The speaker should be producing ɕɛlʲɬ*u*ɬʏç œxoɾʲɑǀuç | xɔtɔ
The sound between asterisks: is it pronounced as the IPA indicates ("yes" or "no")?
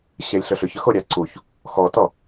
no